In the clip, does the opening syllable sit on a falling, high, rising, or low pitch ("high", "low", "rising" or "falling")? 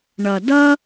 low